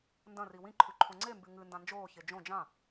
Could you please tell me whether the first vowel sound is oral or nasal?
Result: nasal